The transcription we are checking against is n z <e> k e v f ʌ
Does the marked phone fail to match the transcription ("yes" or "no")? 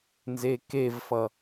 no